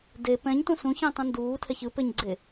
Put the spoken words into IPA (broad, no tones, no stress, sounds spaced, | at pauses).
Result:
d e p ɛ̃ ɲ t ũ s ũ ç ɛ̃ tˤ ũ n d uː tʰ ɛ ç ɯ p e ɲ ɡ͡ǀ e